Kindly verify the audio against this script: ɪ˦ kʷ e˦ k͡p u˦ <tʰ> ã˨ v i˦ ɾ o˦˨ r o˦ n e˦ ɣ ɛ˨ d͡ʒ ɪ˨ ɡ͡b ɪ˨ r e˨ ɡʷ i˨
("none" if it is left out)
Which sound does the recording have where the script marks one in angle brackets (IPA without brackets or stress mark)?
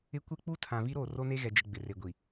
tʰ